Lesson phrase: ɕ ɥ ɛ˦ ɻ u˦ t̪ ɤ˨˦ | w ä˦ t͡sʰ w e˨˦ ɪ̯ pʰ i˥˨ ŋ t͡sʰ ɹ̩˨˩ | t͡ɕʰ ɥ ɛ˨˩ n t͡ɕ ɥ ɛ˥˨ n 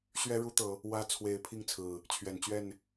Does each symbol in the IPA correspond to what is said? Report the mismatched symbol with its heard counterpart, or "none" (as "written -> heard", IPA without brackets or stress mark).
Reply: none